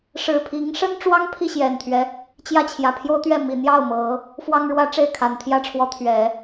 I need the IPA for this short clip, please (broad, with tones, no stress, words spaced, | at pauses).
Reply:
ʂɻ̩˨˩pʰi˧˥ŋʂə˥nʈ͡ʂwɑ˥ŋ pʰi˥˩ɕjɛ˨˩nt̪ʰɥɛ˦ | t͡ɕjä˥˩t͡ɕʰjä˨˩ pʰjo˥ʊ̯t̪ɥɛ˥˩ mi˨˩n̪jɑ˥˩ʊ̯ mɤ˧˥ | fwɑ˥ŋɻwä˥ ʈ͡ʂe˥˩ɪ̯kʰa˨˩nt̪ʰjä˥ʈ͡ʂʰwɔ˧˥ t̪ʰɥɛ˨˩˦